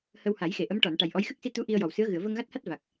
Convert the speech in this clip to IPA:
h ə˧ w h a˨˩˦ j x e˨˩˨ ʔ ə˧˥ m ʈ ɔ˨˩˨ n ʈ a˨˩ j ʔ ɔ˧˥ j x ɨ˦˥ k̚ s i˧ t̪ u˧˥ ʔ i˧ ə̯ j ɔ˨˩ w s ɨ˧˥ ə̯ ɣ ɨ˨˩˨ ə̯ v ə˧ ŋ ɣ a˦˥ t̚ h a˦˥ t̚ v a˨˩ k̚

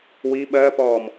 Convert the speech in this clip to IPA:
w i ɓ ɜ p ɔː m

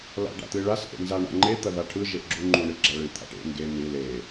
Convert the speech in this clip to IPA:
l a̰ ɖ a̰ t̪ ɨ ɭ a s ʔ ḛ n z a ɳ a̰ ŋ͡ǃ e t̪ ɐ ð a ʈʰ ɯ ʒ e ʔ ɡ͡ǁ u ŋ͡ǃ u ɳ ɨ ɡ͡ǁ a ɭ ɨ t̪ʰ a̰ ʈ ḛ ŋ ɡ e n̪ ɨ l e

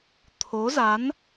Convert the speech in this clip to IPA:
t̪ʰ o˨˦ z a˨˦ n

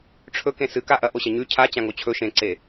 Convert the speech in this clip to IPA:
ʈ͡ʂʰ ɵ k ẽ s ɨ k a ʔ ɐ ʔ o ɕ ɐ ɲ ʉ cʰ a t͡ɕ ã ŋ o t͡ɕʰ ɵ ʃ ẽ ǀ e

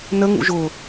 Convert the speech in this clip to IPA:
n ə ŋ ṵ ʒ ʊ

